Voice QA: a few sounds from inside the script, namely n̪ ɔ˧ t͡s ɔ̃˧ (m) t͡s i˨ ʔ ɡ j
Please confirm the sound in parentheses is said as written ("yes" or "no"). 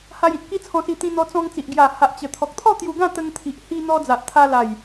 no